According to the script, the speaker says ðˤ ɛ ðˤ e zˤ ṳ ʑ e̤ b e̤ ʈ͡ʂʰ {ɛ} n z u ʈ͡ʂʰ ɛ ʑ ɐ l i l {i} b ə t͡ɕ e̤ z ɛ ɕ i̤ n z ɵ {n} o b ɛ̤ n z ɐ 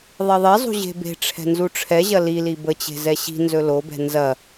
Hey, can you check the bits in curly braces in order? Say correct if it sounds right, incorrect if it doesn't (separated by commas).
incorrect, correct, incorrect